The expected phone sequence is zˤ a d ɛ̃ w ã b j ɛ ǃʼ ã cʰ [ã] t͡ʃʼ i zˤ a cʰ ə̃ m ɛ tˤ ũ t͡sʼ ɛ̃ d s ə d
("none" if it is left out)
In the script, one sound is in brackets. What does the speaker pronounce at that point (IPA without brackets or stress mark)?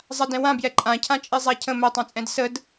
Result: ã